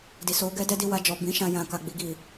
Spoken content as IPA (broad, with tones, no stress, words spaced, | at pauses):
di˨so˨˦ ɡɛ˦dɛ˦ di˧wa˧d͡ʒɔ˨ bĩ˨˦ʃã˧ jã˨ka˨ ɡ͡bi˨ɡi˨